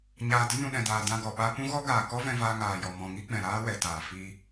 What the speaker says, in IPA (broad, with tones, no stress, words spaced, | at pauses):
ɲaː˧ də˦ nũ˨ɗɛ̃˨daː˨ dã˧ɡɔ˨ ɓa˧pũ˦ɣɔ˦ ɡaː˨ kɔ˦vɛ̃˧vaː˧ ŋaː˨jɔ˨ mɔ̃˨ŋi˦ɡ͡bɛ̃˨ ɾaː˦wɛ˨taː˨ fi˧